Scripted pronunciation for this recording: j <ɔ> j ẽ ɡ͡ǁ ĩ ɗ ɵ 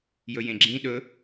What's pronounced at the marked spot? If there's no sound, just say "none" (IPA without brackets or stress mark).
ɵ